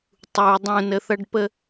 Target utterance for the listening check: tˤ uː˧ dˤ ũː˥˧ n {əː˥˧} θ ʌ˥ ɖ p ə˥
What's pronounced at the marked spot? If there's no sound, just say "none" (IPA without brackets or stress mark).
ə˥˧